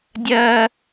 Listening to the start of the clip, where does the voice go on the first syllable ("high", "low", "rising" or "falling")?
high